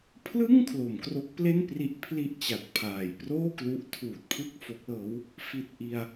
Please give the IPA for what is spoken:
pʰlɯ˥˩ŋ kʰlo˩˦mkro˦˥k̚ple˥˩npri˦˥ʔ pʰli˥˩ʔt͡ɕa˨˩t̚pʰaː˨˩j proː˥˩klu˦˥ʔtʰuː˨˩t̚pʰɯ˥˩k̚ fo˦˥k̚lɤː˦˥w | fi˨˩t̚ ʔi˧a̯

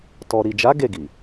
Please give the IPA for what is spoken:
tɔ˨ɾi˨d͡ʒa˨˦ ɡe˦˨ɡi˨

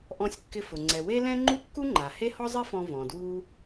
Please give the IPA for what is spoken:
ʔɔ̃˧sʲkːɪ˧fʊ˩ ŋ͡ǀɛ˩we˥lɛ̃˥ ŋ͡ǃu˥kːu˥ŋ͡ǃa˩ he˥hɔ˥zˤi˥fɔ̃˧ vɔ̃˩dwu˧

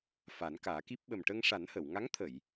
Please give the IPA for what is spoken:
fa˨˩˦nkaː˨˩˦ki˦˥p̚ ɓə˨˩mʈə˧ŋʂa˨˩˦n hə˨˩˨w ŋa˧˥ŋt̪ʰə˨˩˨j

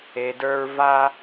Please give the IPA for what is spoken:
e˨də˞˧ɹ va˧

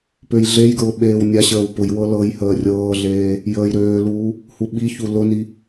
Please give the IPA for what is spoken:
pøjɮejɡɹʊ ɓeːwnʲaɕəːw pʊjwɤ lɤj həːrʲɤːɮeː | jəːjɾøːluː | huɓiçu lʊni

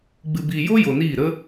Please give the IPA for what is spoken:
ɡ͡bɨ˨biː˨jo˦ jo˨niː˦˨ ɾə˦

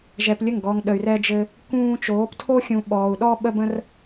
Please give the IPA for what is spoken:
ʒɛ˧plʲə˦˨ŋɡɔ˧ŋ ɗə˧y̯rɛ˦d͡ʒɘ˦ | kũː˦ t͡ʃoː˨˦ptʰo˦xʲũ˧ ɓɔː˧u̯ ɗɔ˦ɓə˦bə̃˦r

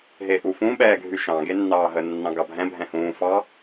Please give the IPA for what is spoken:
ɦeʔufũ ɓɛːɡʱyʃɑ̃ ɡenːɑːɦə nːɑ̃ɡɑbʱɛ̃ bʱɛ̃hũː fɑ

